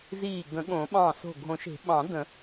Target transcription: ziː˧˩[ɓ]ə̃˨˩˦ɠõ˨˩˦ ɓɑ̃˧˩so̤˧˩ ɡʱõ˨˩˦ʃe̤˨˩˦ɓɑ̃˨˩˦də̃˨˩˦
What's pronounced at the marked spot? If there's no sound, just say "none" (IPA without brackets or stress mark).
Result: ɡ